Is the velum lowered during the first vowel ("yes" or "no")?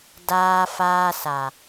no